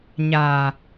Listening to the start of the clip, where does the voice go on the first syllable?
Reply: low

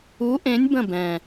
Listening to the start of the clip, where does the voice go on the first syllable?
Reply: rising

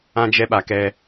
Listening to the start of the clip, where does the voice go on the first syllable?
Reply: high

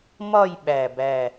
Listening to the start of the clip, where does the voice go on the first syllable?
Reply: falling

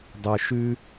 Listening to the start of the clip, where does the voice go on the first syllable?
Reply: low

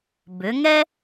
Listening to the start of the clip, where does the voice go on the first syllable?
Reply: rising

